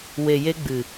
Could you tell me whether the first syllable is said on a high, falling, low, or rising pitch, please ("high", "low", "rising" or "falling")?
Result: low